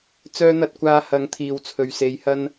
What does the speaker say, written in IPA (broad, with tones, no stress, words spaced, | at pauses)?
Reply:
t͡sœː˧n̪ɐ˧t̚kʷaː˨˧ hɐ˨˥ŋ t̪ʰiː˨wt͡sʰɵ˨ɥse˨˧jhɐ˥n